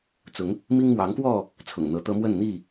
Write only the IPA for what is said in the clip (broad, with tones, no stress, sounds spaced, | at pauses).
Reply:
t͡s ʊ˨˦ ŋ | m i˦ ŋ m w ɑ˨˦ ŋ k w ɔ˥˨ | t͡sʰ ʊ̰˨˩ ŋ n̪ ɤ˨˦ t̪ ɤ˦ m w ə˥˨ n n̪ i˥˨